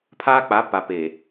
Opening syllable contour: high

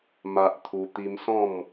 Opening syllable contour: high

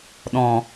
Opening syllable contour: low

